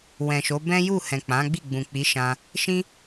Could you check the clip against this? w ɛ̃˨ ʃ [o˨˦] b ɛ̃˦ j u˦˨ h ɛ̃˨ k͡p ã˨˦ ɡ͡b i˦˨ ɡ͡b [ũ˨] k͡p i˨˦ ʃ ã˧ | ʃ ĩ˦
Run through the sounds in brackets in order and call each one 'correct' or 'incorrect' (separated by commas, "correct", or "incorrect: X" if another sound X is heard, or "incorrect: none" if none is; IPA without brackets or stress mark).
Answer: correct, correct